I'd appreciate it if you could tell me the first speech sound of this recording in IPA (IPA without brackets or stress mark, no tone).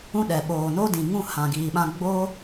ũ